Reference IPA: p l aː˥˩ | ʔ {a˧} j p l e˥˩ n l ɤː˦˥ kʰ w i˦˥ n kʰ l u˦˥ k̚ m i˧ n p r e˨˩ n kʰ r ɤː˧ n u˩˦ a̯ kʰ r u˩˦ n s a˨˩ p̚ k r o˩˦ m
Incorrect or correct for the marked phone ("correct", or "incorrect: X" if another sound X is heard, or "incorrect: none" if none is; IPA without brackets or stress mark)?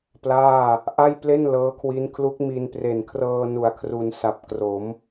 incorrect: a˥˩